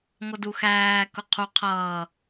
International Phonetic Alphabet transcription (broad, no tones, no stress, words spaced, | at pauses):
ŋʷʌduxæː kʊqʰu qʰʌː